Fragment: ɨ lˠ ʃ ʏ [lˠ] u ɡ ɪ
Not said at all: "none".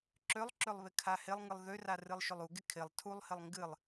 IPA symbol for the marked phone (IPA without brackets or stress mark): lˠ